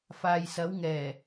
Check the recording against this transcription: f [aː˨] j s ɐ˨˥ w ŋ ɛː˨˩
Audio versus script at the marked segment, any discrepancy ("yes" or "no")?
no